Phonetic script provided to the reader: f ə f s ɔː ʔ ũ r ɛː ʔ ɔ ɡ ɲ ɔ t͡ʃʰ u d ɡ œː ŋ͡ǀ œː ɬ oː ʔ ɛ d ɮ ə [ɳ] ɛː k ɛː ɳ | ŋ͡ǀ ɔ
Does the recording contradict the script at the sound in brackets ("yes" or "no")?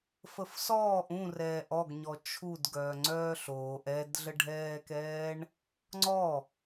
yes